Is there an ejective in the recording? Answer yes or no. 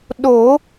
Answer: no